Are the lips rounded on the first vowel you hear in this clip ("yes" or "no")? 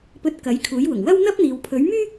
yes